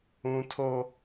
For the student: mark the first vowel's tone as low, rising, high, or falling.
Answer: high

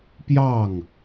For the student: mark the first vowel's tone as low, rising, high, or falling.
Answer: falling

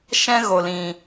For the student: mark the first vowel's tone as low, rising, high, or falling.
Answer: high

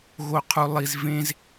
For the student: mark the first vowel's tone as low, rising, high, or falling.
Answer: low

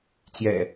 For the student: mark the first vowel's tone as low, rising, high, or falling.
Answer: low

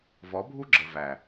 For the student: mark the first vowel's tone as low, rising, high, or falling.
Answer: rising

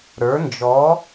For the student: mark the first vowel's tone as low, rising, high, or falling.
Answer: rising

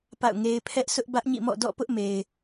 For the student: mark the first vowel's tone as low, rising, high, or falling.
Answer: falling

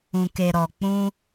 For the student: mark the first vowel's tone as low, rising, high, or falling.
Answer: low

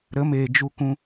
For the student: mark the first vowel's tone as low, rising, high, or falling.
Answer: rising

